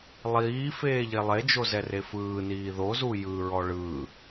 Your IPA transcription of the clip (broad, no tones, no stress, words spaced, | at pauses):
lˠiː feːʎelˠed͡ʒo zɛrefɯːniː ðozu jɯɹɔ ɭɯ